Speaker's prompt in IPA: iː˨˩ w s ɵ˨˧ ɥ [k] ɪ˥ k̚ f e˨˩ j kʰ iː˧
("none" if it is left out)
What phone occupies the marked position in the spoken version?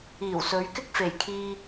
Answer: k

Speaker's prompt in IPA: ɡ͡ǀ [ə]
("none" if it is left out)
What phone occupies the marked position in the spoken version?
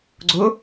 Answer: ʊ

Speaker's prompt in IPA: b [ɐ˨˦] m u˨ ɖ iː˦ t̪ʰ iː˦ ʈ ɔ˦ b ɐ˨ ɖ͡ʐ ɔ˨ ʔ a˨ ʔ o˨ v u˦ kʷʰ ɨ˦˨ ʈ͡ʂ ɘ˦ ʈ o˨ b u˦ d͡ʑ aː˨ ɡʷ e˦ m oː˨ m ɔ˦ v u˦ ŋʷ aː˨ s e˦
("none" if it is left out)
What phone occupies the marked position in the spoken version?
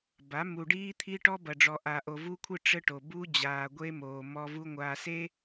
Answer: a˨˦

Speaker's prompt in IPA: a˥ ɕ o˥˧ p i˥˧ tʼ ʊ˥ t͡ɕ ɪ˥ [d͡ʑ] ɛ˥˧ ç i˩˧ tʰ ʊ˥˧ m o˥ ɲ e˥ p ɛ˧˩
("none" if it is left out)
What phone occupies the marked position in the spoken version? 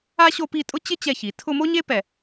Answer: t͡ɕ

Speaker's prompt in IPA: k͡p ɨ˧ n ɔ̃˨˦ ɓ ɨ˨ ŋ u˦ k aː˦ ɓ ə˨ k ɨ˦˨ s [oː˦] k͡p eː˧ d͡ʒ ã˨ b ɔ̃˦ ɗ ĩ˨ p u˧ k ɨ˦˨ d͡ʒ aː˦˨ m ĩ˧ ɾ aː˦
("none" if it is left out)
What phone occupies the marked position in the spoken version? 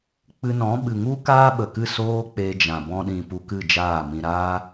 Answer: oː˦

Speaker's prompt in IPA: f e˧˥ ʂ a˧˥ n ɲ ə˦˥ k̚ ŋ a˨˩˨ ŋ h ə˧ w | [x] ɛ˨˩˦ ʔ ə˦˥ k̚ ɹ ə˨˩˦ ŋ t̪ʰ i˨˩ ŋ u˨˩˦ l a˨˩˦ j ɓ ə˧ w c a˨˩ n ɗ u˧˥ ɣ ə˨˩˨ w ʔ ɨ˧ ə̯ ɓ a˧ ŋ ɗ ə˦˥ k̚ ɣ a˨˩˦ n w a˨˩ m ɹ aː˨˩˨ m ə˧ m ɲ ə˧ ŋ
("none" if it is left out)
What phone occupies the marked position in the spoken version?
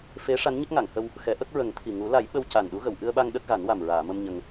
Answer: x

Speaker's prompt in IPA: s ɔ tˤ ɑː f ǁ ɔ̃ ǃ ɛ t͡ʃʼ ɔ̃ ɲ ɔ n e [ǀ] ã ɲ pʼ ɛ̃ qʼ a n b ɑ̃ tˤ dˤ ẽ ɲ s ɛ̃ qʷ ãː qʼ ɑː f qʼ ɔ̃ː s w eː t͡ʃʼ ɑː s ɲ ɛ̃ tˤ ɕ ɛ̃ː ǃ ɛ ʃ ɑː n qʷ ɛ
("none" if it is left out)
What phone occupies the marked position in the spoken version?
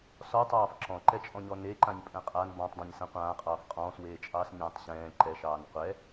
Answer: ǃ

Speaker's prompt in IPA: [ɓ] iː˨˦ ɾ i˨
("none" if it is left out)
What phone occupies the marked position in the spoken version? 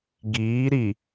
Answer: ɡ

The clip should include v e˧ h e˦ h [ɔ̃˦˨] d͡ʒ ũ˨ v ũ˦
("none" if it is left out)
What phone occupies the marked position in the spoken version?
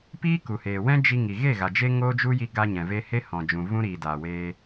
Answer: ɔ̃˨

